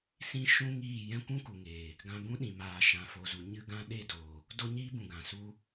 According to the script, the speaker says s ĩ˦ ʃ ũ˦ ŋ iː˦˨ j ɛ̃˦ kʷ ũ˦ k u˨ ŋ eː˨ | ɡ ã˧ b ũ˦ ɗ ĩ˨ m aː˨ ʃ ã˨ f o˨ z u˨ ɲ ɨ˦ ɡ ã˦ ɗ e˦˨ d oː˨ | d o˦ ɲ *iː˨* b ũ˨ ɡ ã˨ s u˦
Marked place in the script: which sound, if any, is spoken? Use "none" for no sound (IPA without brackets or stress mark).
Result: iː˦